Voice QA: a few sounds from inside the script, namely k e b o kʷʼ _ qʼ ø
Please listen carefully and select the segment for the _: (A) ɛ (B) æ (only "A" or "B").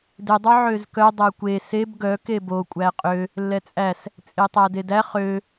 B